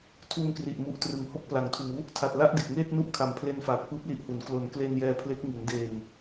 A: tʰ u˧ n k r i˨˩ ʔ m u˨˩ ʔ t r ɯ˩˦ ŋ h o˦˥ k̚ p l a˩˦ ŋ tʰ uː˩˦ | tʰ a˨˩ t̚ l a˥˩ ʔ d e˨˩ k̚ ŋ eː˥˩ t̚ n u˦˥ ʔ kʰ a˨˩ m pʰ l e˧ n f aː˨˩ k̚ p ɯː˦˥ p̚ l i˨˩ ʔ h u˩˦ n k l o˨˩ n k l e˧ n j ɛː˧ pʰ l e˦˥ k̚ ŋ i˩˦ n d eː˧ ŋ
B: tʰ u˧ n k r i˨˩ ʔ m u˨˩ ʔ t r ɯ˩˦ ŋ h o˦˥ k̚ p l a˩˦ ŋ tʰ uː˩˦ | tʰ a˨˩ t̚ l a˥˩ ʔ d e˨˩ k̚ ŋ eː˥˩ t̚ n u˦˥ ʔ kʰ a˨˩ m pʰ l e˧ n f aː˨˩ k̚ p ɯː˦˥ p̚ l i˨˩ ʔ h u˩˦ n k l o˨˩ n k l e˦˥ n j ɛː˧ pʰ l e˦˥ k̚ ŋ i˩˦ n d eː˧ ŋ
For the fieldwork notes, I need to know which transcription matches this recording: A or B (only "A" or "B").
A